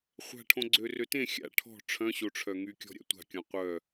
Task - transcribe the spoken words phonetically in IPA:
χʷ a̤ ʈʰ õ ɡ͡ǀ ø r ø t ẽ xʲ a̰ ʈʰ ɔ̤ ʈ͡ʂʰ œ̃ ɕ o ʈ͡ʂʰ œ ŋ y kʲ ɔ̤ ɾʲ a̰ tʷ a̤ kʲ ɔ̃ qʷ œ

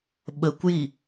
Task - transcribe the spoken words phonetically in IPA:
ɓ ə kʷ j i

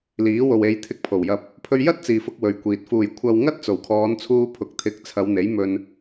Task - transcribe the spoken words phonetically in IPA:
l iː˨˥ w o˨ w e˨˧ j t̪ʰ ɪ˧ k̚ pʰ o˨˩ w j ɐ˧ p̚ | pʰ ɵ˧ ɥ j ɐ˥ t̚ t͡s iː˨ f ʊ˧ k̚ w ɵ˨ ɥ kʷ iː˨ t̚ f uː˨˩ j kʷʰ ɐ˨ w ŋ ɐ˥ t̚ t͡s o˨˩ w kʰ ɔː˨˧ n t͡sʰ uː˧ pʰ ʊ˨ k̚ t̪ʰ ɪ˨˥ k̚ t͡sʰ ɐ˨˧ w n̪ e˨˥ j m ɵ˧ n

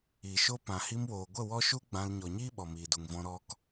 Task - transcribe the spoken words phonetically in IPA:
iː˨ ʃ o˦ p ã˨ h i˧ m w oː˨ ɡʷ ə˦˨ w ɔ˦ ʃ u˦ ɡ͡b ã˧ l ɲ ɔ˨ ɲ iː˦ ɓ ɔ˨ m iː˨ d u˨ ŋ v ɔ̃˧ ɾ ɔ˧ k

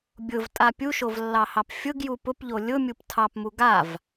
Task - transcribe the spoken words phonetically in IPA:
bʲ ʊ v tʼ a pʲ u ʃ o v lː ɑ h ɑ p fʲ ʊ ɡ j u p ʊ p ʎ o lʲ ʊ mʲ u p tʰ ɑ p m u ɡ a v

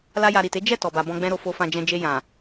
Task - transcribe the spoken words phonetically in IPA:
l a˦ j a˧ ɾ i˨ t e˨˦ d͡ʒ ɛ˦˨ t ɔ˨ b a˨ b ɔ̃˧ ɡ͡b ɛ̃˦ ɾ o˧ f o˧ f ã˧ d͡ʒ ɛ̃˧ d͡ʒ e˧ j ã˨

